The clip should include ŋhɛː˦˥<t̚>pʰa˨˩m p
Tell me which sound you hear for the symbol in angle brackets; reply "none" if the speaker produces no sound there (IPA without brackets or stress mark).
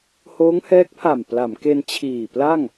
k̚